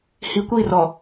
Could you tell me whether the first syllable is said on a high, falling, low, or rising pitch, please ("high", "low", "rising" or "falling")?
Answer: low